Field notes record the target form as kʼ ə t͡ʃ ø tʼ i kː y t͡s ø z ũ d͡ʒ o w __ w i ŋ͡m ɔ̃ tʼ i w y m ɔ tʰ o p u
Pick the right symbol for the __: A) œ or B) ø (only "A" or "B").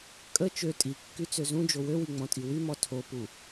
B